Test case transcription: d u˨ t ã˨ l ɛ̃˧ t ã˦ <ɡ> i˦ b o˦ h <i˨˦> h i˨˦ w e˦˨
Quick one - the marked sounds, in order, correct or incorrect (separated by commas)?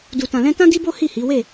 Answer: incorrect, incorrect